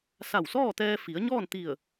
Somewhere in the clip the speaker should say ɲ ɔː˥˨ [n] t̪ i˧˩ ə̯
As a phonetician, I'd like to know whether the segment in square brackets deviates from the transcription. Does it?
no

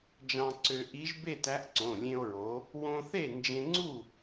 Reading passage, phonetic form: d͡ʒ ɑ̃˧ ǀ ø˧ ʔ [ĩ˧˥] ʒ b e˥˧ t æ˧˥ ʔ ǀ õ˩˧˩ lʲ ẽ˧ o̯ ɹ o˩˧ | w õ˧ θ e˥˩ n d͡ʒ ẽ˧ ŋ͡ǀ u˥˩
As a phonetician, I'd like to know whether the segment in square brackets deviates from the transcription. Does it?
yes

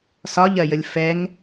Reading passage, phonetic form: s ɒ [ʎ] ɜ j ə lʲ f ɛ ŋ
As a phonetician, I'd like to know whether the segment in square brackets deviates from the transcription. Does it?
no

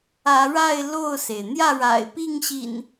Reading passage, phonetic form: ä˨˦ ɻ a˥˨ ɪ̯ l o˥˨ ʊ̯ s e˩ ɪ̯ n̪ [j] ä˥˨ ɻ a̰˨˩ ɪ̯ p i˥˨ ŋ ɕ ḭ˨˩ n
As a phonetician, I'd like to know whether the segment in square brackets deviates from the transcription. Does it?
no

